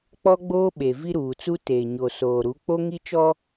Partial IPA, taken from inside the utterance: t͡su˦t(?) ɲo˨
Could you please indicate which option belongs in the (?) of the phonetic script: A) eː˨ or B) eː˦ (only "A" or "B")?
A